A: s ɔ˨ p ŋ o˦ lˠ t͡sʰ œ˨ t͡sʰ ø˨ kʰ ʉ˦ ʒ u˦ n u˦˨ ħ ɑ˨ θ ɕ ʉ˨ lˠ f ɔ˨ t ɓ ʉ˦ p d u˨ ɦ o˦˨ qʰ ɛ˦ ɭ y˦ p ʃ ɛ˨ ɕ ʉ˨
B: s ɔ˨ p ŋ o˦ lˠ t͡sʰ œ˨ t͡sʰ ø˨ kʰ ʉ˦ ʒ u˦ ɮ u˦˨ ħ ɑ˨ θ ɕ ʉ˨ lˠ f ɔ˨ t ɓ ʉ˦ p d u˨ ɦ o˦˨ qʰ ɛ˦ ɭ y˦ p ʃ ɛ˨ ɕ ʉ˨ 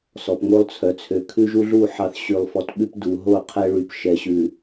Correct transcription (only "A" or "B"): B